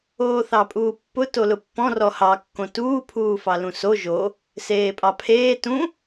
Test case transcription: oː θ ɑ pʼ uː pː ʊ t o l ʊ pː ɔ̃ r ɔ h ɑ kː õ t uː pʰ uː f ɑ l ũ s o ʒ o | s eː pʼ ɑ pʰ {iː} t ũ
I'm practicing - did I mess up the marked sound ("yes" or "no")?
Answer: yes